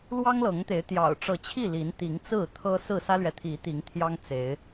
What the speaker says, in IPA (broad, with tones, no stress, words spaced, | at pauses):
lwɑ˦ŋlɤ˨˦ŋt̪e˨˦ɪ̯ t̪jɑ̰˨˩ʊ̯ʈ͡ʂɤ˨˦t͡ɕʰi˥˨ li˨˦nt̪i˨˦ŋt͡sɹ̩˥˨ t̪ʰɤ˦sɹ̩˥˨ sä˦lɥɛ˨t̪ʰi˨˦ t̪i˨˦ŋt̪ʰjɑ˦ŋ t͡se˨˦ɪ̯